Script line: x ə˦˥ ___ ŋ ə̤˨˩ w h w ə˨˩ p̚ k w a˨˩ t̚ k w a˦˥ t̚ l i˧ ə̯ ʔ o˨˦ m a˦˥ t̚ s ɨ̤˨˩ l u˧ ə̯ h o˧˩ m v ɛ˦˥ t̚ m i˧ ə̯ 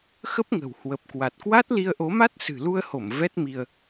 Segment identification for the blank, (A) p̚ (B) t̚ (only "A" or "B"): A